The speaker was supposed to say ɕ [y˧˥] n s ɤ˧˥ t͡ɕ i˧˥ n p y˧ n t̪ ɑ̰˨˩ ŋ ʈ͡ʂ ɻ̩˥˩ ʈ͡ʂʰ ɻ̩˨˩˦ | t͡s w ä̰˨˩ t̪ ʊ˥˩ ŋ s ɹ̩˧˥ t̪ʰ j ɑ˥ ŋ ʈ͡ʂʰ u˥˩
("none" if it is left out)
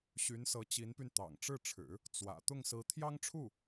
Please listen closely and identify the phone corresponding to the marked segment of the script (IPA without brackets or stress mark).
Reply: y˧˥